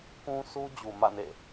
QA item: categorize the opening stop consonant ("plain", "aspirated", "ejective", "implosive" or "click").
plain